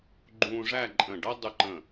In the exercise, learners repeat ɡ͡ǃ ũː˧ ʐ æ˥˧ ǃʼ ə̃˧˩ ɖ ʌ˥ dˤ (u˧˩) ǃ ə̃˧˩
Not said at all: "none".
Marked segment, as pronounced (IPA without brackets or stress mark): u˧